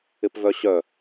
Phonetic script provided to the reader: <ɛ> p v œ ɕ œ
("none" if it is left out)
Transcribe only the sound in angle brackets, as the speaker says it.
ɪ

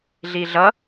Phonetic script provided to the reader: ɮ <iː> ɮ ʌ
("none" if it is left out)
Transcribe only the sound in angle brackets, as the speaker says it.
iː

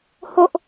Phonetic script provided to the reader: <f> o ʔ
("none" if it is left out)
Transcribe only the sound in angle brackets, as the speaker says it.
h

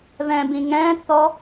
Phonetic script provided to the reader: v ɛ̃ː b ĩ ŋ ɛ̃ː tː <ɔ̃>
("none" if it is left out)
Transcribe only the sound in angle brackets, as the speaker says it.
ɔ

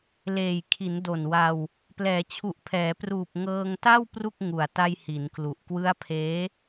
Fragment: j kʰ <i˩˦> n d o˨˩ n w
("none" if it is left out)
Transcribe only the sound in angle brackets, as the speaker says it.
i˩˦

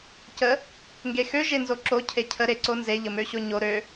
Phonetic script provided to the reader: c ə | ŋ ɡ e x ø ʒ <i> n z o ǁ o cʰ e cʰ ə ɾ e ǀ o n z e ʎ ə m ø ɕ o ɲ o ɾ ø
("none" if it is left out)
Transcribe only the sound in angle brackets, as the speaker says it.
e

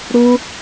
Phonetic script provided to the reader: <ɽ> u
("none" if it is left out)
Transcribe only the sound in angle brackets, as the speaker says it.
ɽ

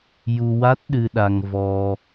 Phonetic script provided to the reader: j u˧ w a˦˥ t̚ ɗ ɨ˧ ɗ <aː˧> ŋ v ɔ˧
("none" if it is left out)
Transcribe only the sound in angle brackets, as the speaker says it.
a˧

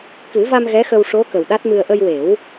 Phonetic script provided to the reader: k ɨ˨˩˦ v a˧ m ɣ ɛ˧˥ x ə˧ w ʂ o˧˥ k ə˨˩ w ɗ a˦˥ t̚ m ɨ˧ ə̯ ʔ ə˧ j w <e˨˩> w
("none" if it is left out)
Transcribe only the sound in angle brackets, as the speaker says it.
e˨˩˦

